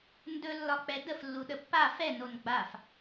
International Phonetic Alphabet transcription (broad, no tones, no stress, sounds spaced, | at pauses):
n d ɵ lː ɒ k͡p ɛ d ə f lː u ɗ ə pː a f ɛ n o n ɡ͡b a f